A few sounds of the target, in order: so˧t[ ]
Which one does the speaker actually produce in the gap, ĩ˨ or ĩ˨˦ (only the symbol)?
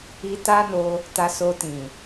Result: ĩ˨